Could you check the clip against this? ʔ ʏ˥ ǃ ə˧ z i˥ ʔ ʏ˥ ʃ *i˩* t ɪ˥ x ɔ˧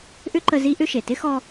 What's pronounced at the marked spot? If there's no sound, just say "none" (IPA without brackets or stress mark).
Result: e˩